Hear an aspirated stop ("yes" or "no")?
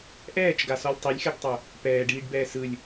no